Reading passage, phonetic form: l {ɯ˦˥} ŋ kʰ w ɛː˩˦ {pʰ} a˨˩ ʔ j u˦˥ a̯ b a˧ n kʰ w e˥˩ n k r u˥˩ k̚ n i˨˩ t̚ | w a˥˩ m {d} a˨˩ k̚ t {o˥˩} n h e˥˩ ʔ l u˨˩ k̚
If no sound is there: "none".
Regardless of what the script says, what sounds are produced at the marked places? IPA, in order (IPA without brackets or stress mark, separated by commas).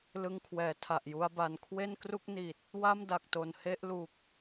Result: ɯ˧, tʰ, d, o˨˩